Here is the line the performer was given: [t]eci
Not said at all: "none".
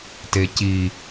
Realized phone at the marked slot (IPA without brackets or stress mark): t